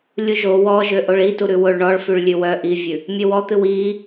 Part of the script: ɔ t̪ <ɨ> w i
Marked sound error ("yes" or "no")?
no